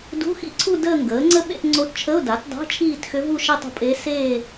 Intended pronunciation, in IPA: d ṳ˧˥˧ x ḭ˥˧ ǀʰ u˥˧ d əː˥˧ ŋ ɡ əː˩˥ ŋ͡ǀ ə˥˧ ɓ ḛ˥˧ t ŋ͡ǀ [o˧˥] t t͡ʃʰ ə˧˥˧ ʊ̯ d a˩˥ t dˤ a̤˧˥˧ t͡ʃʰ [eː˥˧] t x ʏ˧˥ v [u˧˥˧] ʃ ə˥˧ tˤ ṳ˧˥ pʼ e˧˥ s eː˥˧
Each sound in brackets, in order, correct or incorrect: correct, incorrect: iː˥˧, incorrect: u˥˧

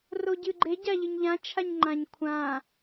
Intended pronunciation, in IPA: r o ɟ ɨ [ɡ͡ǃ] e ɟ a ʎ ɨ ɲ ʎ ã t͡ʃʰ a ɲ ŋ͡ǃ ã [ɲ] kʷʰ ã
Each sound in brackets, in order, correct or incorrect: correct, correct

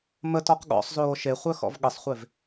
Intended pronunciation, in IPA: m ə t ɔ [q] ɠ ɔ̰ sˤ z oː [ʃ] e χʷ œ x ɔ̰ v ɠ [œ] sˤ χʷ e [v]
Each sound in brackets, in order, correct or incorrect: correct, correct, incorrect: ə, correct

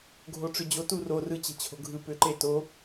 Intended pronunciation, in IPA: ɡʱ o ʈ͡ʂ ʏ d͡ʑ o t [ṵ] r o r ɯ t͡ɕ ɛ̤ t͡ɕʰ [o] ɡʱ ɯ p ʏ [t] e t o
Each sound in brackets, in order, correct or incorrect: incorrect: u, incorrect: o̤, incorrect: ǃ

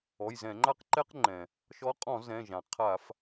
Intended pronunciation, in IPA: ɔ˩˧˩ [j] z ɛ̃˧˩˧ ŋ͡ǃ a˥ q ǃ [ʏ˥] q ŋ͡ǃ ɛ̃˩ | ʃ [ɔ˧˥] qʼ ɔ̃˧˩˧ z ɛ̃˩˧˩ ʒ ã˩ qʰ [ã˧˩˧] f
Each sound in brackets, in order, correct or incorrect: correct, incorrect: ɛ˥, correct, incorrect: a˧˩˧

